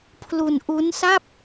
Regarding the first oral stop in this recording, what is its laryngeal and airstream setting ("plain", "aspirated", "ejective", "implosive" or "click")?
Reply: aspirated